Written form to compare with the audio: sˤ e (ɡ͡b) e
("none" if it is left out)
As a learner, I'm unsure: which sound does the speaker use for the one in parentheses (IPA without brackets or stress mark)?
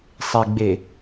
ɡ͡b